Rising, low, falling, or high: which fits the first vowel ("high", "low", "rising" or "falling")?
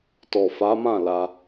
low